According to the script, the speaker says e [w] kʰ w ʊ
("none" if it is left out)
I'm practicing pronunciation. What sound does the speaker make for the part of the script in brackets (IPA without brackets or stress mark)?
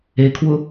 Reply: none